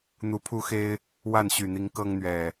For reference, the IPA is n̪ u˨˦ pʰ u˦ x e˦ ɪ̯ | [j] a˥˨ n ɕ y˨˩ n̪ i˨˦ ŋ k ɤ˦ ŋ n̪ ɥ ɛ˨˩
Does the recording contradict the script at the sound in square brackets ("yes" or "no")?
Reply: yes